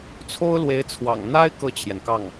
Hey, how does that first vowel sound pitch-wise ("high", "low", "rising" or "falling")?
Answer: high